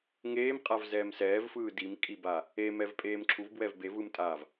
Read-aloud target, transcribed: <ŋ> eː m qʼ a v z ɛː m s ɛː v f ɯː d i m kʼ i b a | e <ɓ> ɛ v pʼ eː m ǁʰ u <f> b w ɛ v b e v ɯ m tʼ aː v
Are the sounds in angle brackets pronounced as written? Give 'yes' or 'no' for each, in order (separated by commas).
yes, no, no